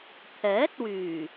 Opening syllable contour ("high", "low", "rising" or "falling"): rising